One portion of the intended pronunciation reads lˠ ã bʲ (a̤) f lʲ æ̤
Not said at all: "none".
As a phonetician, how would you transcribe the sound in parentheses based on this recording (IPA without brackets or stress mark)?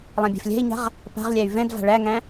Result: æ̤